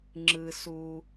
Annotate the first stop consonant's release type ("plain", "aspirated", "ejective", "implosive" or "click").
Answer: click